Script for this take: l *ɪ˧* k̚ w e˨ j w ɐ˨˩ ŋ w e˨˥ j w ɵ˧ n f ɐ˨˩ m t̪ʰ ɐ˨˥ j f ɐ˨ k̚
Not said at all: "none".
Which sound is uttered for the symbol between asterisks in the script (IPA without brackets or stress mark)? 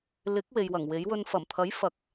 ɪ˨˥